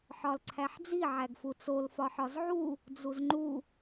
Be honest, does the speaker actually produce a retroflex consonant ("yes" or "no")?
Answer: no